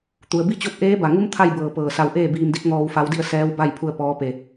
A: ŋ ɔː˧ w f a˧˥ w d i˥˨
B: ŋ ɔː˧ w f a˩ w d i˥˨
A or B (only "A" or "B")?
A